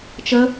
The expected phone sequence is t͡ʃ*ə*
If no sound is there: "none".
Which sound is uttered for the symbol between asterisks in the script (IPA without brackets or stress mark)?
ə